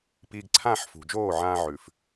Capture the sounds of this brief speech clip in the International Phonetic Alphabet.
p iː˧ ɡ ǀʰ ãː˦˨ ħ f ṳ˨ d͡ʒ oː˦˨ ʕ ãː˧ ʕ ʉ˨ f

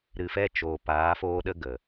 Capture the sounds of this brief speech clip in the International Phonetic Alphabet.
ɾ ɨ˨ f ɛ˧ t͡ʃ oː˨ p aː˨˦ f oː˦ ɗ ə˦ ɡ ə˨

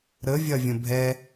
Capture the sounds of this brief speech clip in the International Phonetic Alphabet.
ɾ ə vʲ ɐ vʲ ə̃ bʱ ɛ

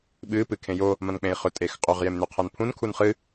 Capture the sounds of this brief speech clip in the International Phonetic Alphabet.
ɓ ɨ p ɨ kʰ ẽ j o | m ɐ̃ n k͡p ẽ i̯ χ ɵ tʼ e x qʼ ɵ ʁ j e m n ʉ qʰ ɐ n pʰ ũ n kʰ u n χ ɨ

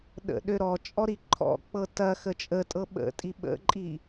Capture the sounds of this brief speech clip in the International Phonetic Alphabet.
ɗ ə̰ ɗ ø ɾ ɔ t͡ʃʼ ɔ ɾ i ǃʰ ɔ̰ k͡p ɤ t ɐ x ə t͡ʃʼ ə tʼ ɤ ɓ ə̰ tʼ i ɓ ə̰ ǃʼ i

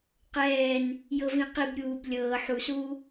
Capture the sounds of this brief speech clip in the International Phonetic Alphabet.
q ɛː n | j ɤ v ĩ q i b ɾʲ uː b lʲ ɤː ħ u s uː

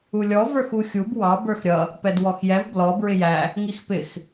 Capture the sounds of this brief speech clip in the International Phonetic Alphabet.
u lʲ ɔ v ə˞ x u xʲ u b w ɑ b ə˞ x ɾʲ ʌ | p ɛ d w ɔ x j ɛ v b l ɔ b ɹ ɪ j æ | ŋ i x p ɪ x

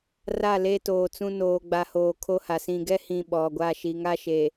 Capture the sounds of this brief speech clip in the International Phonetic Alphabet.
r a˦˨ l e˦ t oː˨ t͡s ũ˦ n oː˨ ɡ͡b a˨ h oː˨ kʰ o˦ h a˨ s ĩ˨ ɡ ɛ˦ h ĩ˨ ɓ ɔ˨ ɡʷ a˦˨ ʃ i˨ ŋ a˦ ʃ e˨

